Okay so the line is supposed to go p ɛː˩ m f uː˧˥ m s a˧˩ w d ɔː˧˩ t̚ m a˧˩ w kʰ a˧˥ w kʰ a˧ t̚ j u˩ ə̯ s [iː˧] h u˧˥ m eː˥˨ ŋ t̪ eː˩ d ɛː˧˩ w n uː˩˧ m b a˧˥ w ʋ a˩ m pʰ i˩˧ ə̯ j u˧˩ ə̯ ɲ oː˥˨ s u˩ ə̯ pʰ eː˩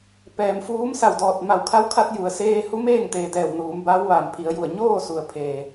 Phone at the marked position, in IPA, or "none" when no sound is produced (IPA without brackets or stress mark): eː˧